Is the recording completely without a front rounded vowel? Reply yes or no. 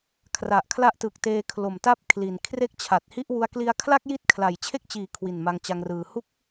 yes